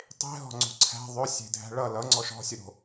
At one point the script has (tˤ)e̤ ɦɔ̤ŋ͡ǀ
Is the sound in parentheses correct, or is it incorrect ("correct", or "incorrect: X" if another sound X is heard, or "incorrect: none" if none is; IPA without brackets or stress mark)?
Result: correct